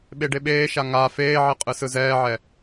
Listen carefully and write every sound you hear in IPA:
ɓ e ɖ e ɓ eː ʃ a ŋ a f eː ʕ i qʼ ɯ s ɯ z ɛː ʕ ɛ

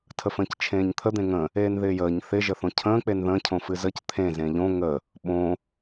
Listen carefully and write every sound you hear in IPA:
tʰ ə f ə̃ː c t͡ʃʰ ẽː ɲ t̪ʰ ə d̪ ẽ ŋ ə̃ | eː n ð ɪː j əː ɲ θ ɪ ʒ ə θ õ cʰ ə̃ː k͡p e n ð ə̃ː cʰ õ f ɨ z ə c t̪ʰ ẽ z ẽ ʎ õ ŋ ə | ɓ õ

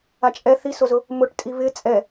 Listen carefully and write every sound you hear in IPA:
a t͡ʃʼ ɛ θ i s o z ʊ | m ʊ ʈ tʼ i β ɪ t͡sʼ ɛ

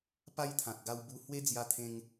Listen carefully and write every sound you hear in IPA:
p a˦ j t̪ʰ ã˨ t̚ ɡ a˧ w b u˧ h w e˦ d͡z j a˧ t̪ʰ ẽ˧ ŋ

